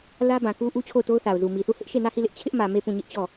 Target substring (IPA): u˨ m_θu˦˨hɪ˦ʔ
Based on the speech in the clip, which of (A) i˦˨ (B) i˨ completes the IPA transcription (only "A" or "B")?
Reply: B